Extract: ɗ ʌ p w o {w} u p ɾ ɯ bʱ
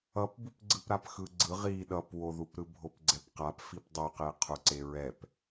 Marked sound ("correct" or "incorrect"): incorrect